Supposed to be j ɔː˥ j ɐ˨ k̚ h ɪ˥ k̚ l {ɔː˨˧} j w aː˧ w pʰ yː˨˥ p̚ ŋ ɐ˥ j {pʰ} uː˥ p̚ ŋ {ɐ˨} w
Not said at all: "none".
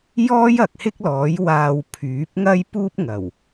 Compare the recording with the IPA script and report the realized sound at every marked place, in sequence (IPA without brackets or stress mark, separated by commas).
ɔː˨˥, p, ɐ˨˩